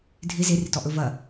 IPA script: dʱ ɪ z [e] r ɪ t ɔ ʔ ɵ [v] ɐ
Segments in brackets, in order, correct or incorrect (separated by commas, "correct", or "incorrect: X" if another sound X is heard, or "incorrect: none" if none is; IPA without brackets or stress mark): correct, correct